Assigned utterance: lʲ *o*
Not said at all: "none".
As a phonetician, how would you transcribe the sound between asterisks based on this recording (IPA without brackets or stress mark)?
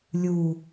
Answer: u